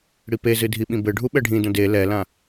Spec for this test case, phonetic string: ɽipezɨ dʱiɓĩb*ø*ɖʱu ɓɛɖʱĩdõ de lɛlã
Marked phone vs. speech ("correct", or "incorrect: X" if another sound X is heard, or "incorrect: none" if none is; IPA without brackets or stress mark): incorrect: ɘ